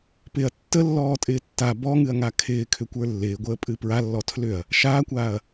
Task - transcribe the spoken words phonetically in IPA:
p ɪ ɐ̯ tː ə lː ɔː tʼ ɪː tː a b ɔ ŋ ɨ ɐ̯ ŋ a kʰ ɪː kʰ ʏ kʷ ə˞ lː ɪː ɡʷ əː pʼ ɨ p ɹ a lː ɔ tʰ l ʏ ɐ̯ | ʃ aː kʷ aː ɐ̯

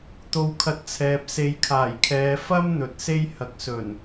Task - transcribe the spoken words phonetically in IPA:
t̪ o˧ w kʰ ɐ˧ t̚ t͡sʰ ɛː˨ p̚ s e˨˧ j kʰ aː˨˩ j kʰ ɛː˨˧ f ɐ˥ m n̪ ɵ˨ t̚ s e˥ j h ɐ˨ k̚ s ɵ˨˩ n

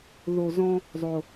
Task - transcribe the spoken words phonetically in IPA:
ð o˦ z ɔ̃˥ | zˤ o˦

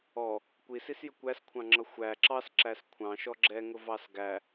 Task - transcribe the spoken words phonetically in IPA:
ɔ | kʷ i s i s j ə kʷ æ s kʷʰ ɑ̃ ŋ͡ǁ ʌ xʷ æ ǁ ɑ s ǁ æ s kʷʰ ɑ̃ ʃ ɔ ɡ͡ǁ ɛ ŋ ʊ v ɑ s ɡ æ

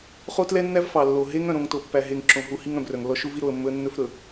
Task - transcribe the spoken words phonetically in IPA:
χ o˦ t l ɛ˦ nː æ˦ v f ɑ˨ lː o˨ ɦ e˦ ŋ œ̃˨ ɾ õ˨ ŋ t o˨ pː æ˨ ɦ e˨ ŋ ǁ õ˨ ɦ u˨ h i˦ ŋ œ̃˨ b r œ˨ ŋ lː ɔ˦ ʃ u˦ v i˦ ɾ o˦˨ ə̯ mː ɵ˦ ə̯ nː ɵ˦ f ɾ ɵ˨

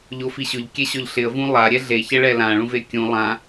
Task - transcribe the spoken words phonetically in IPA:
ʎ o f i ɕ ʊ ʎ kʲ ɛ ɕ ɔ ʎ ɬ ɪ ə̯ v ũ lˠ a ɾʲ ɛ ɮ e ç ɛ ɭ ɛ l ã ɭ ũ v e kʲ ũ lˠ ã

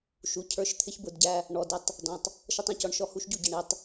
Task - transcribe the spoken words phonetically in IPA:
ʃ u˨ cʰ ə˞˦˨ ʃ t̪ʰ ɪ˦ ç b ʊ˦˨ d ɟ æ˦ | ɳ ɔ˨ d ɪ˦ tˤ | d ɔ̃˨ tˤ | ʃ ʌ˦ tˤ ɔ̃˨ c ɔ˦ ɳ ʃ ɔ˦ h u˦ ʃ ɟ u˨ ɟ ʌ˨ ɳ i˨ tˤ

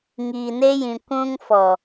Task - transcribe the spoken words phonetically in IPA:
ŋ iː˨ n e˦ j ĩ˨ kʷ ũ˦ ŋ f ɔ˨

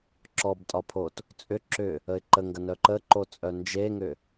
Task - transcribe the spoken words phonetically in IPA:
ǁ ɔ b tʼ ɒ pʰ o t | t͡sʼ ʏ ǁ ʏ | ə ɪ̯ ǃ ə ŋ ɡ ɐ n œ ǃ ə ǃ o t͡sʼ œ n d͡ʒ e ŋ ʏ

